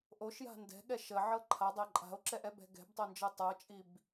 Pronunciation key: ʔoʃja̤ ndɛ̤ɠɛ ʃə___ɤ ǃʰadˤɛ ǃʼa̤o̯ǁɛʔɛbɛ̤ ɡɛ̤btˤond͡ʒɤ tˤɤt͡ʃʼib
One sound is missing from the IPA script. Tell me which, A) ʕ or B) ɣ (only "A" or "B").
A